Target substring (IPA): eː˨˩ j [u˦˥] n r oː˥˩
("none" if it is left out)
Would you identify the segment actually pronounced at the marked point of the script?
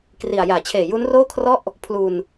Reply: u˦˥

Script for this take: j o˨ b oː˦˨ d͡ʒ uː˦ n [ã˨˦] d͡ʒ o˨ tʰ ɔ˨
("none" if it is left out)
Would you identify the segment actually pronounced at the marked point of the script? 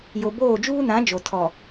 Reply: ã˨˦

